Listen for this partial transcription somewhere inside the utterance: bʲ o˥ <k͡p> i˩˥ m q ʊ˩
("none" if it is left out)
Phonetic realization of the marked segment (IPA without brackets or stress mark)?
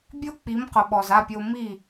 k͡p